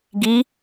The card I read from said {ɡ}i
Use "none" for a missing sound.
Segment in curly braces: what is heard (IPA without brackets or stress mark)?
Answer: ɡ